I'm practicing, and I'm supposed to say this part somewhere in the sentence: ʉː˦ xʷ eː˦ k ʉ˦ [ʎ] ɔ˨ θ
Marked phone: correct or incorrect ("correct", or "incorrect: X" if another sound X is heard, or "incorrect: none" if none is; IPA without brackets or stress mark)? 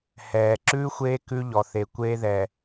correct